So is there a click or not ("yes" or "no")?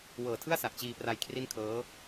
no